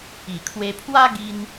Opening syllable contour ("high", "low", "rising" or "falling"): low